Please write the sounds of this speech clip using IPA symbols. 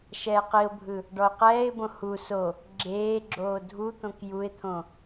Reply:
ʃ ɛː q i ʊ̯ bʱ ɯ | ɖ ɔ ʊ̯ q ɛː ɪ̯ b õ h u s o | ɡ͡ǁ eː ɡ͡ǁ oː dʱ u t̪ õ k j u ɪ̯ t̪ʰ õ

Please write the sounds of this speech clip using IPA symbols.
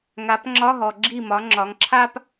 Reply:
ŋ a˨˦ p ŋ͡ǁ ɒ˧˥˧ ɦ ɔ˨ ɡ͡ǁ i˥˩ m ɒ˨˦ ŋ͡ǁ ɒ˨˦ ŋ ǁʰ a˥ p

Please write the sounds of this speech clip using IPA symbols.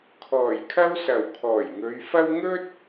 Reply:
kʰ ɔː˨˩ j kʰ ɐ˥ w s ɐ˨˩ w kʰ ɔː˨˩ j ŋ ɵ˨˧ ɥ f ɐ˥ w ŋ ɵ˥ t̚

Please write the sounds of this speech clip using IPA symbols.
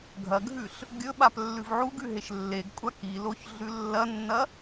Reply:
ɡʱ ɐ ɡʱ ʉ ɬ | ɡʲ ɵ ɓ a p lː ʉ v ʕ u ɡ ʉ ɦ e ʃ lː e ɡ kʷʼ a k i l o ç ɮ ʉ lː ɐ nː ɐ

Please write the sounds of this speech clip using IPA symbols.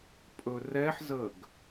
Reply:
pʼ ɵ r ɛ ħ z ə ɡ

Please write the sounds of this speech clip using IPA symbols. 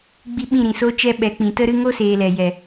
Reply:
ɡ͡b i˦ ɓ ĩ˦˨ ɾ ĩ˨ s o˦ t͡ʃ ɛ˦ ɓ ɛ˨˦ k͡p ĩ˨ t ə˦ ɾ ɨ˦ ŋ o˦ s eː˨ l ɛ˨ j ɛ˨

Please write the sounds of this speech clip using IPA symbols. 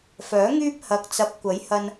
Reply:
f œː˨˥ ŋ yː˥ p̚ h ɐ˨ k̚ t͡s ɐ˨˥ p̚ kʷ ɐ˨˥ j h ɐ˧ n

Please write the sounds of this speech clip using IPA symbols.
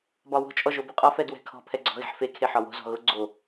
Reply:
b ɒ w o̤ t͡ʃʼ ɔ ʒ o b u qʼ ɒ f ɛ d w ɛ̤ kʰ ɔ̤ pʰ ɛ ɡ͡ǀ ɔ̤ ɣ e̤ ħ f e kʰ e ħ ɒ w o̤ z ɔ̤ ɣ ʊ ɡ͡ǀ o

